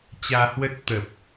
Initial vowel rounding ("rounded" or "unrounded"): unrounded